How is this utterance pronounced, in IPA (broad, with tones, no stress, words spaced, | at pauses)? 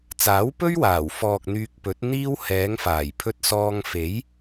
t͡saː˨˥wpɵ˥ɥwaː˨˩wfɔː˨k̚ n̪yː˧k̚pɵ˨˥t̚n̪iː˥w hɛː˨˧ŋfaː˨˩jpʰɵ˧t̚ sɔː˧ŋfe˨˥j